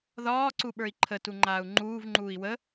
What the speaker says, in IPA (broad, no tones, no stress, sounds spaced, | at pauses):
ð ɒː ǀ u ɓ ə˞ i̯ ǃʰ ə t u ŋ͡ǃ aː u̯ ŋ͡ǃ uː v ŋ͡ǃ uː i̯ w ə